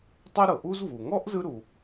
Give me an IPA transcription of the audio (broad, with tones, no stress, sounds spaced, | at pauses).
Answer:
tˤ ɛ˥ ɾ ɤ˩ ʔ u˥ z v u˩ ŋ ɔ˥ ʔ z ɯ˥ ɾ u˩